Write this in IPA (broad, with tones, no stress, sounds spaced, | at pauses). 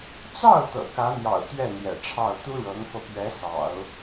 t͡s ɑ˥˩ ʊ̯ t̪ ɤ̰˨˩ k ä˧˥ n̪ j ɑ̰˨˩ ʊ̯ t̪ ɥ ɛ˥˩ n̪ j ɛ̰˨˩ ʈ͡ʂʰ ɑ˥˩ ʊ̯ t̪ u˥ ɻ ɤ˧˥ ŋ f ɤ˧ p ɥ ɛ˧˥ s ɑ̰˨˩˦ ʊ̯